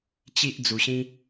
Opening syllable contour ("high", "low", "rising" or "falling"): high